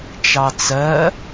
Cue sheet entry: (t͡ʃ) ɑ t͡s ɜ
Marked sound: correct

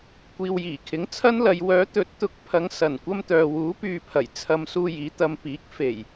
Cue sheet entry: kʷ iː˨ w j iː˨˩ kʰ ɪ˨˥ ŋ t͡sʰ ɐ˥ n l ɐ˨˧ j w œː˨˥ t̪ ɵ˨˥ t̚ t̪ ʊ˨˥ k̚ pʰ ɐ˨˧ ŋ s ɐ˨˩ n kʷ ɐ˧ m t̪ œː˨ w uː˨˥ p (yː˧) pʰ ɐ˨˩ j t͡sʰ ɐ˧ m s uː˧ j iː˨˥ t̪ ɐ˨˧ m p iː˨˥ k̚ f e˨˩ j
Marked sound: incorrect: yː˨˧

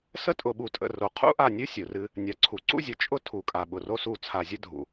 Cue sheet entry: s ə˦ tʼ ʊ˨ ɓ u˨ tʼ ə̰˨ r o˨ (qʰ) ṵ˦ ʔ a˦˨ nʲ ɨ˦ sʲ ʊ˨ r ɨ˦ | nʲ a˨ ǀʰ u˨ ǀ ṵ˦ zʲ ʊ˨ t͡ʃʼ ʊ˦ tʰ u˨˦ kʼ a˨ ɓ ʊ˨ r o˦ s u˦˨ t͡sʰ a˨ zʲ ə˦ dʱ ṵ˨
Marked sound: correct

